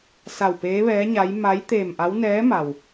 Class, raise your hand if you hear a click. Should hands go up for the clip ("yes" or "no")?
no